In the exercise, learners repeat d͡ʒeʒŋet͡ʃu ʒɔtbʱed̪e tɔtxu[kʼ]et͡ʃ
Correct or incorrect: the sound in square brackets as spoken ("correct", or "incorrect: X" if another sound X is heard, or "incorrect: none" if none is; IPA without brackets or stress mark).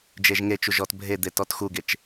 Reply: incorrect: ɡ